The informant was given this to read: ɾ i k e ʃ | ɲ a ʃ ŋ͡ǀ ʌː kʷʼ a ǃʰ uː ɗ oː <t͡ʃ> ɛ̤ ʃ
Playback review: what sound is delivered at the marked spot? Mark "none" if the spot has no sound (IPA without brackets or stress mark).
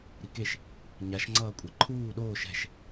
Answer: ʃ